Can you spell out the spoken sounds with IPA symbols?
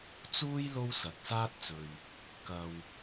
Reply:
t͡suː˥j lo˥wsɐ˨k̚saː˥t̚t͡sɵ˨ɥ | kɐ˨w

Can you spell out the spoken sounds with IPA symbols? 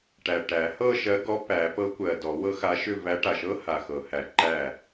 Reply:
ʈæ˨˩ʈæ˨˩˦ hɤ˥˨ʃɜ˧˥ ɡɔ˧˥pæ˨˩˦pɤ˧˥ kʷɜ˨˩dɔ˨˩˦wɤ˧˥xa˧˥ ʃʏ˥˨væ˧˥ ʈa˨˩ʃɤ˧˥ ha˨˩xɤ˨˩˦hæ˨˩ ǃæ˥˨

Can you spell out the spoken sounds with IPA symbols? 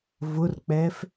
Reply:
vʊrk͡pɛːf

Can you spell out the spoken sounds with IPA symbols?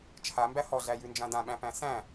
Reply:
t͡ʃʰambæ hɔɮæjʉnd͡ʒã dãɓæ̃pæ̃ sæ̃

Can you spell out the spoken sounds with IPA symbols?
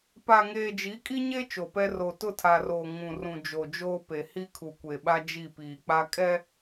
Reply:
pa˨ŋeː˨ d͡ʒi˨˦kʼi˦ɲe˦ t͡ʃo˨pɛ˦ ro˨tʊ˦˨tʰa˨roː˨ ŋũ˨rũ˨ d͡ʒo˨d͡ʒoː˦pe˨ hi˦kʰu˨kʷe˨ɓa˦ d͡ʒi˦˨piː˨k͡pa˦ kʼɛ˦

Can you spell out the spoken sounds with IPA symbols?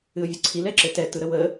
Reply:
ɨʊ̯vʲɯǀʰil ɛǁɘtɛ tɯɾəwə

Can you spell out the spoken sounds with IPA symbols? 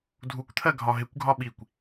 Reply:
dʱukʷt̪ʰɜ ɡʱɒɦɪkʷɡʱɒ ɓikʷ

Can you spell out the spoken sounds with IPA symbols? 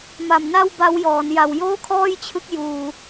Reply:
ma˨˩mna˥˩w ba˦˥wjɔː˩˦n ja˨˩wjoː˥˩kʰɔː˥˩jt͡ɕʰɯ˦˥k̚ juː˧

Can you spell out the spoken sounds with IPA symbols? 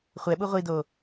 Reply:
χʷɛɓu ʁʷido

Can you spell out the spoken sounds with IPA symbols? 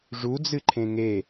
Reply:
ʐud͡zɨǃʰẽ ŋe

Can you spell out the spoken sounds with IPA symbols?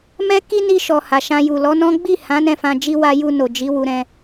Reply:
mɛ˦ ki˦ni˧ʃɔ˨ ha˨ʃã˧ju˨ lɔ˨˦nɔ̃˦ ɡ͡bi˦˨hã˨˦ nɛ̃˦˨fã˧d͡ʒi˦ wa˦ ju˧no˨ d͡ʒi˨˦wu˧ɾɛ̃˧

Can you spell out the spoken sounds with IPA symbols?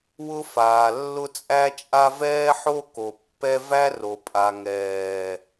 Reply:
wʊ˦faː˨ lːʊ˦t͡sʼæ˦t͡ʃʼa˦ vɛː˦ħo˦ ko˨pːɛ˦ væ˦ro˨pʼa˨ ŋɛː˨

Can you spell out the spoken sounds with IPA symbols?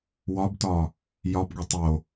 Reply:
wɒbtɒ | jɒbɡʷe tˤo

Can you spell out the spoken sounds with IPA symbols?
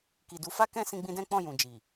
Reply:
ki˨du˨˦fa˦kɛ̃˦ sĩ˧ɡ͡bĩ˧ dɛ̃˦k͡pɔ̃˦˨jũ˨ d͡ʒi˨

